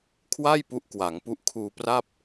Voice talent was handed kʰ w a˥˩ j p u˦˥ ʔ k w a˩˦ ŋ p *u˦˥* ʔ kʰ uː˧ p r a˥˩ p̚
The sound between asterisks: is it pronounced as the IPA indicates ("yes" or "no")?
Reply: yes